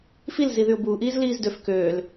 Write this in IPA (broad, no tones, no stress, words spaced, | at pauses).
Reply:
fil ziðyʊ̯buːʔiːz liːzdøf køːl